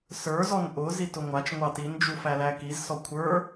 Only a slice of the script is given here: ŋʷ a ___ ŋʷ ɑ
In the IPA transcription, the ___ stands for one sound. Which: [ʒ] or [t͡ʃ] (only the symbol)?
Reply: t͡ʃ